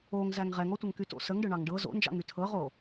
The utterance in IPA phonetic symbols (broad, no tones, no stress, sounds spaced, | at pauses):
o ŋ z æ ŋ ʁ ɛ ŋ ɔ tʷ ə ŋ k y t o̰ s ə ŋ ɖ ɤ ɳ ɑ ŋ ɖ ɤ z o̰ n d͡ʒ ɑ̰ ŋ y tʰ ɤ ʁ o